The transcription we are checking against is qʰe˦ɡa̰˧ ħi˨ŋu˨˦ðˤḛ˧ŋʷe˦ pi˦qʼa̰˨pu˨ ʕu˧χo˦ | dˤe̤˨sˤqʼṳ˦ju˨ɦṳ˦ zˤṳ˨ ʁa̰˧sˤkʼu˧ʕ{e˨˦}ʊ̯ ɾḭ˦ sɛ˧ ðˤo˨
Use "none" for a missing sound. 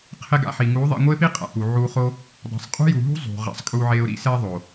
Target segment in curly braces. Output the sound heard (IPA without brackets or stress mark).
e˧